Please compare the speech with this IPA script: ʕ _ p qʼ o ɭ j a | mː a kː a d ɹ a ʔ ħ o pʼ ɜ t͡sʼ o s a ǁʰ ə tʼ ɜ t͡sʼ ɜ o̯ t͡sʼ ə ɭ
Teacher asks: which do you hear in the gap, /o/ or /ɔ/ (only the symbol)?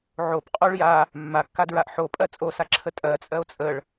o